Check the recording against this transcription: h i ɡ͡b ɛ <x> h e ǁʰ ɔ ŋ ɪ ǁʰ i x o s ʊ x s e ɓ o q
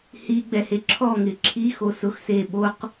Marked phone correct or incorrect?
incorrect